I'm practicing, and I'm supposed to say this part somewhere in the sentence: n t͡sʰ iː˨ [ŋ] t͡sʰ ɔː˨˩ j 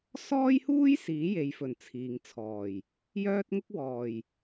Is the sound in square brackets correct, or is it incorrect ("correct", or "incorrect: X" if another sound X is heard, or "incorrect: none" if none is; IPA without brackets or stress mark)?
correct